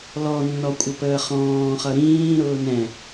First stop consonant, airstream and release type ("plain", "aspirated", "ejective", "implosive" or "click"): ejective